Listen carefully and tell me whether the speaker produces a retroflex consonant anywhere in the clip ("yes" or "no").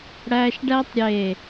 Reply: yes